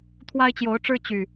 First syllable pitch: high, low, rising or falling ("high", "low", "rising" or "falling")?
high